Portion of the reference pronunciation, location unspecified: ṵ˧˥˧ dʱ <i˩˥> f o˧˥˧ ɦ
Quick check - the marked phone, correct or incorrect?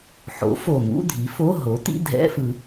correct